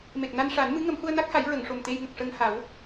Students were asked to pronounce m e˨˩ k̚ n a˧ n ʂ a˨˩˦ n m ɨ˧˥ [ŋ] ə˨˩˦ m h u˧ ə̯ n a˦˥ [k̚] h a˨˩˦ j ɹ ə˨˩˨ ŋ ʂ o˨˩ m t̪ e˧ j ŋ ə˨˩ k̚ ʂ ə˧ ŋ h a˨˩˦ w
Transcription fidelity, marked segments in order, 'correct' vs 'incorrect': correct, correct

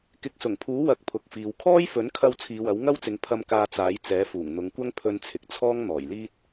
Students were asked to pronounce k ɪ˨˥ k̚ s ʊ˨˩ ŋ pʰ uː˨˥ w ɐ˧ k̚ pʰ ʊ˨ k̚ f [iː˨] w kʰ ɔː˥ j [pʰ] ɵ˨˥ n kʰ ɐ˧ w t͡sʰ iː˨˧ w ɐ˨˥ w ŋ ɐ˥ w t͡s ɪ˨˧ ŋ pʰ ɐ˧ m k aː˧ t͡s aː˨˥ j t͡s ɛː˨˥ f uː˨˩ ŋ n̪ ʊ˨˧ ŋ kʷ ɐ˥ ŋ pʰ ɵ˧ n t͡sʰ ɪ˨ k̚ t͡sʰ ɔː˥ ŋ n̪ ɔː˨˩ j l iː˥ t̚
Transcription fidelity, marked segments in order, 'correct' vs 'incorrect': correct, incorrect

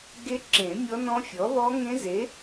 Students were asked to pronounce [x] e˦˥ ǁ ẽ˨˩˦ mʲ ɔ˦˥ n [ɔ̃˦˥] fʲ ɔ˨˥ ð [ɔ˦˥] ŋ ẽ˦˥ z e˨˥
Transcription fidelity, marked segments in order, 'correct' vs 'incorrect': incorrect, correct, correct

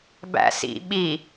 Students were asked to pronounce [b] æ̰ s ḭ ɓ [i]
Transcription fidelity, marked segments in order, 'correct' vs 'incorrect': correct, correct

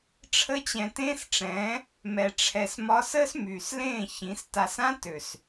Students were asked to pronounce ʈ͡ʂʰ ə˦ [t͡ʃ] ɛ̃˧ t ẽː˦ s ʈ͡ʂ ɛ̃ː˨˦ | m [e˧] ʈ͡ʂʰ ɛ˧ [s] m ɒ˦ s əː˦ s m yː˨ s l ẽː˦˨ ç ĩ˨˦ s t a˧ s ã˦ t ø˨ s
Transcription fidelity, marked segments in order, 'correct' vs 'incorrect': incorrect, incorrect, correct

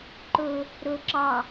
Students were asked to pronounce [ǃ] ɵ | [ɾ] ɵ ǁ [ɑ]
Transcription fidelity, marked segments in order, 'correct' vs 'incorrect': correct, correct, correct

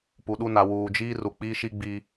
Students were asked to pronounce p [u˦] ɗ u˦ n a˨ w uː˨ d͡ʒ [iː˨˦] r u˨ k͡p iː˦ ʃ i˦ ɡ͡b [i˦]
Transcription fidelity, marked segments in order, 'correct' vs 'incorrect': incorrect, incorrect, correct

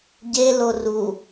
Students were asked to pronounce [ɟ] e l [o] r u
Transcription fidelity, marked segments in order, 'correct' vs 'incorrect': correct, correct

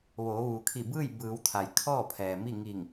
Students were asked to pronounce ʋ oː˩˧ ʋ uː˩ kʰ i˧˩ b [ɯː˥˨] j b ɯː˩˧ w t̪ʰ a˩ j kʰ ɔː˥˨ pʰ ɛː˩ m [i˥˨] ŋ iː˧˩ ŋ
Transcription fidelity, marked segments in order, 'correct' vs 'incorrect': correct, correct

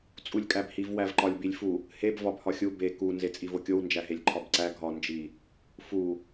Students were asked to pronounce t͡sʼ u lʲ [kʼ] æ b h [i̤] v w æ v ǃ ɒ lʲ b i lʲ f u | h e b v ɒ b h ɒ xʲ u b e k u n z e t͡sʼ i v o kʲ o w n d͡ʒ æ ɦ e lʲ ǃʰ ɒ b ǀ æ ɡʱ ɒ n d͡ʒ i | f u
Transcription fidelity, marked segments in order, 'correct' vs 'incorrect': correct, incorrect

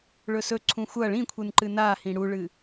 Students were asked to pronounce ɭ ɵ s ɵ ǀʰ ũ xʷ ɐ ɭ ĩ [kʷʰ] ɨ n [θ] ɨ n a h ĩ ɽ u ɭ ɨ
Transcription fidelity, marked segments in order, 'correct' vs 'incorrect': correct, incorrect

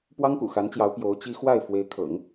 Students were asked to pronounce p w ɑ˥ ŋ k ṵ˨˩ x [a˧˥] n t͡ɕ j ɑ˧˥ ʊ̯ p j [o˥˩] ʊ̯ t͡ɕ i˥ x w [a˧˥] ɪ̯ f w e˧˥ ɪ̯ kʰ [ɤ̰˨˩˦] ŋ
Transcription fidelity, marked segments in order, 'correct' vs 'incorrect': correct, incorrect, incorrect, correct

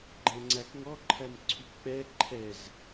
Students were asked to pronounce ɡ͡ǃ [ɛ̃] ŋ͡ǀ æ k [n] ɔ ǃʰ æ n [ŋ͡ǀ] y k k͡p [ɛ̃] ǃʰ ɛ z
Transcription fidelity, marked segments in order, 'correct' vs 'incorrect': correct, incorrect, incorrect, incorrect

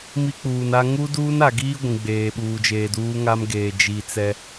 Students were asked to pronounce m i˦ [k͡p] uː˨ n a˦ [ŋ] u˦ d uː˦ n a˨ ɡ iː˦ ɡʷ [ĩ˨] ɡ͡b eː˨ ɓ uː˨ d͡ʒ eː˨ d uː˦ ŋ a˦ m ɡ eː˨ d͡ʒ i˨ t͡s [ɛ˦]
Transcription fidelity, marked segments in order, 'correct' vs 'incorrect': correct, correct, correct, correct

